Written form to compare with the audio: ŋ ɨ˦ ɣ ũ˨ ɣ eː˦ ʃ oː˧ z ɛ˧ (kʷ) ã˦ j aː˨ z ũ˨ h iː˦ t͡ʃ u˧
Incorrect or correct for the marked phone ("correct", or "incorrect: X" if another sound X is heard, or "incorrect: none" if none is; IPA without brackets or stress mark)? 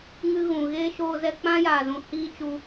incorrect: k͡p